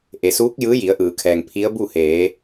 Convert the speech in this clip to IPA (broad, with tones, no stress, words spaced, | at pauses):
ʔe˩suː˧˥k̚ jɯː˧˥ji˩˧ə̯ʔɯː˩kʰɛː˩ŋ pʰi˧˥ə̯bu˥˨heː˩˧